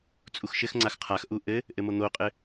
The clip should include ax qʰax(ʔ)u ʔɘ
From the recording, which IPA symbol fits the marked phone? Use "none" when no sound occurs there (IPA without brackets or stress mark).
ʔ